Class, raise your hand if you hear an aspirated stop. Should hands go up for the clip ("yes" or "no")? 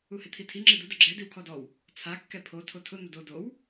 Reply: yes